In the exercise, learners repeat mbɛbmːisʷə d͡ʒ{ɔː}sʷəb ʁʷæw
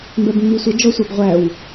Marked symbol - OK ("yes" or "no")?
no